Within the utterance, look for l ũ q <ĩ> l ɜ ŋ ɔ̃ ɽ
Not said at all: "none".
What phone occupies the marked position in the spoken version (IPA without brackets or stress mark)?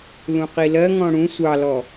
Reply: i